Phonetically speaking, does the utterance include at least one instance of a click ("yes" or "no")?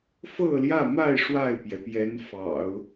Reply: no